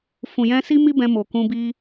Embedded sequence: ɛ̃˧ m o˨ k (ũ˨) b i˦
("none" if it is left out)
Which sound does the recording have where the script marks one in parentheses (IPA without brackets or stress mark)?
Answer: ũ˧